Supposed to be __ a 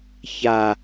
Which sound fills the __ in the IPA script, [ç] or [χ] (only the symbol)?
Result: ç